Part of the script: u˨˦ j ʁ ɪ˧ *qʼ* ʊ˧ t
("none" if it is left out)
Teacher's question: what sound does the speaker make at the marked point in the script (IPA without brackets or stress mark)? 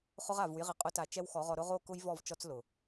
qʼ